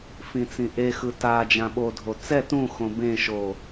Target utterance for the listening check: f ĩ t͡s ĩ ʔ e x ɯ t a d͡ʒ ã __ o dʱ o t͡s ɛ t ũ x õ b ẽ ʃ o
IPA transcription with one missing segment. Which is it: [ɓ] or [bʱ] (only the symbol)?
ɓ